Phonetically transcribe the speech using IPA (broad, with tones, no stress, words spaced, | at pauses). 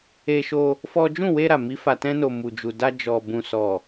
e˧ʃo˧ | fɔ˦ d͡ʒũ˦˨we˧ɾa˨mi˨˦ fa˧tɛ̃˦no˧ mu˨d͡ʒu˨da˧ d͡ʒɔ˨ bũ˨sɔ˨